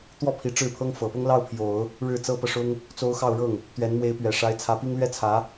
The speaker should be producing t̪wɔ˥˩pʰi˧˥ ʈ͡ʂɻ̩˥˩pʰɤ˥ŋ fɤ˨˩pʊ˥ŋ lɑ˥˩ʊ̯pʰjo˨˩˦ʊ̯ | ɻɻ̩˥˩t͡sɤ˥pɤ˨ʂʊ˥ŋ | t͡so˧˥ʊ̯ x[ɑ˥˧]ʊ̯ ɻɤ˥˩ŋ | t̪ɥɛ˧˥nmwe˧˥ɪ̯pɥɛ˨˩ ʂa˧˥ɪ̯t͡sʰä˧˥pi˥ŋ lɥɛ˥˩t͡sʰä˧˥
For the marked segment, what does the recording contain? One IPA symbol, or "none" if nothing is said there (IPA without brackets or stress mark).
ɑ˥˧